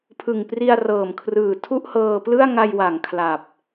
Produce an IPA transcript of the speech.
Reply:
pʰ ɯ˨˩ ŋ p r i˧ a̯ r ɤː˨˩ m kʰ r ɯː˨˩ tʰ u˥˩ ʔ h ɤː˧ p l ɯ˥˩ a̯ ŋ a˧ j w a˩˦ ŋ kʰ l a˨˩ p̚

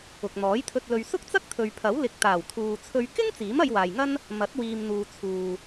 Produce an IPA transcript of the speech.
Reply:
ʊ˨ k̚ n̪ ɔː˨˥ j t̪ʰ ɵ˧ t̚ l ɵ˧ ɥ s ʊ˥ k̚ t͡s ɐ˥ k̚ t̪ʰ ɵ˨ ɥ pʰ ɐ˨˥ w l ɪ˨ k̚ t̪ aː˨˩ w t̪ʰ uː˨ t͡sʰ ɵ˧ ɥ k ɪ˥ ŋ t͡s iː˨˥ m ɐ˧ j w aː˨ j ŋ ɐ˥ n | m ɐ˨˥ t̚ w iː˨ m n̪ uː˨ t͡sʰ uː˨

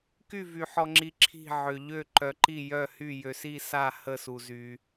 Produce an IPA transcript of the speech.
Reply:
k y˦˨ v y˨ ħ ɔ˨ ŋ͡ǁ i˨ ǁʰ i̤˦˨ ʕ ø˨ ʎ ø˦˨ ǃ œ˨ ǃ i˦˨ j œ˦˨ h y˦˨ j ø˨ s i˦˨ s a˦˨ h ə˦˨ s u˨ z y˨

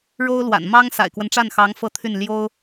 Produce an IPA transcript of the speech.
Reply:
ɻ o˥ ʊ̯ l w a̰˨˩ n m ɑ˥ ŋ s a̰˨˩ ɪ̯ k w ə˦ n ʈ͡ʂ a˥˩ n x ɑ˧˥ ŋ f ɤ˥˧ t̪ʰ y˥˩ n l j o˥ ʊ̯

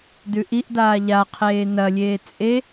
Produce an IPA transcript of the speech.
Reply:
d ʉ ʔ i ʔ d aː ʎ a qʰ eː n ɐ lʲ eː t͡sʼ e

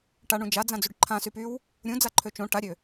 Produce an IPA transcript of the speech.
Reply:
ʈ a ɳ ũ d͡ʒ a d͡z ã d͡z y ɖ ǃʰ ã s y p y w | ɾʲ ũ d͡z a ǃʰ ø t͡ʃ õ ʈ a ɾʲ ø

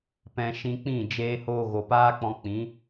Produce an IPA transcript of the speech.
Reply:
p ɛ̃˧ ʃ ĩ˧ k͡p ĩ˦˨ d͡ʒ eː˧ h oː˧ ɣ o˨ p aː˦ k͡p ɔ̃˧ k͡p ĩ˨˦

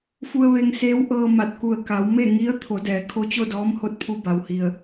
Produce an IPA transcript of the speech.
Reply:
f u˧ ə̯ ʋ e˧ ŋ s eː˧˥ w ʔ ɤː˧ m a˧˩ t̚ k u˧˩ ə̯ k a˩˧ w m e˥˨ ŋ i˧˥ ə̯ t̪ʰ o˩˧ d ɛː˩˧ kʰ o˧˥ t͡ɕ o˥˨ d ɔː˧˥ m h o˧˥ t̚ pʰ u˧ b a˩ w h i˩ ə̯

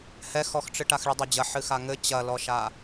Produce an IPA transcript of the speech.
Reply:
h ɛ x ɔ x ʈ͡ʂ ɨ ʈ a x ɭ ɨ dˤ ɛ d͡ʑ ɐ ħ ɨ x a ŋ ɘ t͡ɕ ɐ l ɔ ʃ a

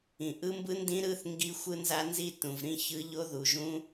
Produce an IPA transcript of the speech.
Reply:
ĩ˨ ʔ ɯ˦˥ m b ɯ˦˥ n d ĩ˦˥ ɾ ɯ˦˥ θ ŋ ɡ i˦˥ xʷ ɯ˦˥ n z a˦˥ n z i˦˥ t ũ˨ v ɾ ĩ˦˥ ç ɯ˦˥ ʎ o˦˥ ð u˨ ʒ ũ˦˥

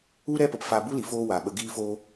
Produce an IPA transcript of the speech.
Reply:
u˦ ɾ ɛ˦ p ə˨ p f a˧ b u˦ l i˨ f oː˦ w a˨ ɓ ə˧ ɡ iː˧ f oː˧

